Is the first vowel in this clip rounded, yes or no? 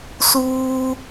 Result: yes